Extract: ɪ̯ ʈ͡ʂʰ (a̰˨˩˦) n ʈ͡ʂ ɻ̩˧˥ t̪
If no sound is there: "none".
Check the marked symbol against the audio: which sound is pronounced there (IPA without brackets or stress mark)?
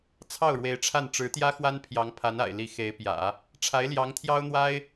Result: a˥˩